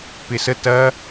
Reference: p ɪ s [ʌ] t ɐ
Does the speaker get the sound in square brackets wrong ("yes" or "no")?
yes